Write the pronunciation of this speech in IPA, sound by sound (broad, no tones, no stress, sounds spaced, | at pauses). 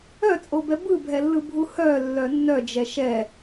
œ t͡sʼ o b ɛ b ɯ bʱ ɛ lː ɯ bʱ u h œ lː œ nː œ d͡ʒ ɛ ʃ ɛ